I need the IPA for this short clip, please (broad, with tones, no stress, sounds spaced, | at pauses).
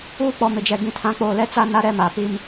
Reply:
uː˦ k͡p ɔ˨ m ɪ˨ d͡ʒ ɛ˨ ɡ ĩ˨ tʰ ã˨˦ k͡p oː˨ l ɛ˦ t͡s a˦ n a˦ ɾ ɛ˦ m a˨ p i˦ m